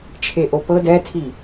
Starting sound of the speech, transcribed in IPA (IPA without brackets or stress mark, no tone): t͡ʃʰ